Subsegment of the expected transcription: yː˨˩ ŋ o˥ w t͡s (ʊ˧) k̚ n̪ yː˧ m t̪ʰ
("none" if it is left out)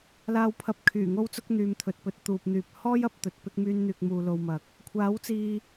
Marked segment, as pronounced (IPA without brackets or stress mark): ʊ˥